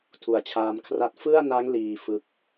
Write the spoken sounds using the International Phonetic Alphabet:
tʰu˩˦a̯t͡ɕʰaː˧mkʰra˥˩t̚ fɯ˥˩a̯na˦˥ŋliː˨˩ fɯ˥˩k̚

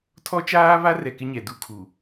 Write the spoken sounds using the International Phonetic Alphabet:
tʰɔ˦t͡ʃaː˦βa˦rɛ˨ kɪ˦ɲɛ˨du˦kʰu˨

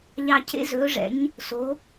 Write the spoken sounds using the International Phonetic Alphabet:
ʎɑ˧˩cʰḛ˥zɵː˩˥ʐɛ̰˩˥ɲ | so˩˥

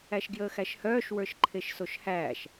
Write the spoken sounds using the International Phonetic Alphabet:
æʃɡjəːxæʃhœːʃ wə˞ʃǃʰeʃsoʃhæːʃ

